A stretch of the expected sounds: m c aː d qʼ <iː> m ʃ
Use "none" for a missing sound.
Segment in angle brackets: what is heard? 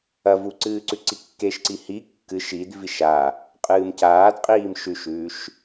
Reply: iː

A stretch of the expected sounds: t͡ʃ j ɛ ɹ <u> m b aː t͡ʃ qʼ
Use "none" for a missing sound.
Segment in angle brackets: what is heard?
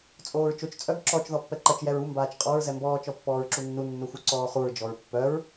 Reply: u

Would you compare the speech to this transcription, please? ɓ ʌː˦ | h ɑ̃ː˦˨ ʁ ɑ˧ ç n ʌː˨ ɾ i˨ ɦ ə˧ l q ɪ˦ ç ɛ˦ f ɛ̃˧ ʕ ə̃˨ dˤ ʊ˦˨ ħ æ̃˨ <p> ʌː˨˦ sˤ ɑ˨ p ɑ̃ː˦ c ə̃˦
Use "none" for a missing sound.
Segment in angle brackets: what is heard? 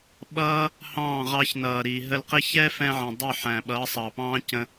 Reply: ɓ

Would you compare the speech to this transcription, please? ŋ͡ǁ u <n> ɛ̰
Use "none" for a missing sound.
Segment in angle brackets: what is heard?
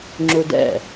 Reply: d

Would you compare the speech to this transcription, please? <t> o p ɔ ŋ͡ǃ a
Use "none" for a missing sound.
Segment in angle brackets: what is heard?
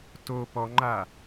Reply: t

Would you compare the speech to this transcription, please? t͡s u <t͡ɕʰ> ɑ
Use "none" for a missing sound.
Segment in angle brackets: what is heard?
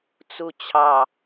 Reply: t͡ɕʰ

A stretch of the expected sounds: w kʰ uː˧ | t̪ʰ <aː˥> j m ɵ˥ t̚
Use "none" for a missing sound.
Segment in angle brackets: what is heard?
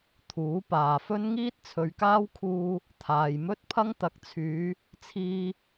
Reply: aː˨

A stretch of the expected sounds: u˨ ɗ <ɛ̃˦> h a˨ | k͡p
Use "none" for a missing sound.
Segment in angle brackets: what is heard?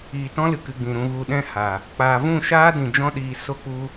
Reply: ɛ̃˦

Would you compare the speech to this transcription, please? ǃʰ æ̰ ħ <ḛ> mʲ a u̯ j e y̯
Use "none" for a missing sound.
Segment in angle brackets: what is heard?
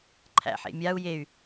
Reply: ḛ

